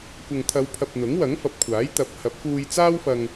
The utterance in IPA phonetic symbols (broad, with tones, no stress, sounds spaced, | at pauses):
kʷ ɐ˨ ŋ t̪ʰ ɐ˨˧ w pʰ ɐ˨ p̚ n̪ ʊ˨˥ ŋ w ɐ˨˥ ŋ f ɐ˨ p̚ kʷʰ aː˨˥ j t̪ ɐ˨˥ p̚ h ɐ˨˥ p̚ f uː˧ j t͡s aː˥ w f ɐ˧ ŋ